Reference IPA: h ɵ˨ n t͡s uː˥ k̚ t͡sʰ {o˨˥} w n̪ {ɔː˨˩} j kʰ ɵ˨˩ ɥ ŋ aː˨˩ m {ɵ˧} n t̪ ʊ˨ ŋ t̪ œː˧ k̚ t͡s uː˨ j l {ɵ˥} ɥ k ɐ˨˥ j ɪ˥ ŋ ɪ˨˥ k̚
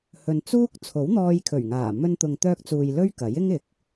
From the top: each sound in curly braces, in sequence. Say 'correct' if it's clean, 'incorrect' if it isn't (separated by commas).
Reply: correct, incorrect, correct, correct